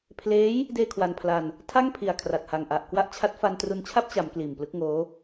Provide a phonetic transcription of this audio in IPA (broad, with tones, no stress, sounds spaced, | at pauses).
pʰ l eː˦˥ j | d eː˥˩ kʰ w a˧ n pʰ l a˧ n | tʰ a˥˩ ŋ pʰ i˨˩ a̯ kʰ r a˨˩ t̚ h a˨˩ ŋ ʔ a˨˩ ʔ k w a˦˥ ʔ t͡ɕʰ a˦˥ t̚ f a˧ n t r u˧ n t͡ɕʰ a˥˩ p̚ t͡ɕ a˩˦ m k l iː˨˩ m p l ɯ˦˥ k̚ ŋ oː˦˥